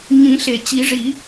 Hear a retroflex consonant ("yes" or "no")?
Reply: yes